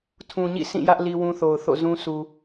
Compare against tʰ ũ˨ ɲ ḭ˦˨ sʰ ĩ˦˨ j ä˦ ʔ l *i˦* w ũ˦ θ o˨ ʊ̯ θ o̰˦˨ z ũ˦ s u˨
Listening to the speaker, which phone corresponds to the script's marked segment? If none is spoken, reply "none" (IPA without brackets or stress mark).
i˦